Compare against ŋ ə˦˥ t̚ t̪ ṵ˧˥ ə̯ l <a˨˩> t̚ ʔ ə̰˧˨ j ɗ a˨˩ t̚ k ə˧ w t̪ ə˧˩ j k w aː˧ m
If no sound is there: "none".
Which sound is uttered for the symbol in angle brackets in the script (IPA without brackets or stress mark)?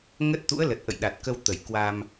ə˨˩